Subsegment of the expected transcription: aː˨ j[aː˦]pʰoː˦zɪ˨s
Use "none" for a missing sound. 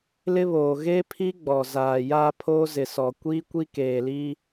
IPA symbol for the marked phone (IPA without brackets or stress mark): aː˦